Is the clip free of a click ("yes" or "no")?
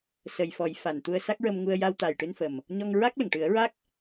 yes